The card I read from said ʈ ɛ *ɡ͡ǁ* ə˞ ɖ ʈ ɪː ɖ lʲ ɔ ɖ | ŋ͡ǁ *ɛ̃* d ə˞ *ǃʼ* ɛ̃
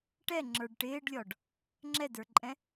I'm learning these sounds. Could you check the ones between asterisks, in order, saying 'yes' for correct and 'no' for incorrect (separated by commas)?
no, no, yes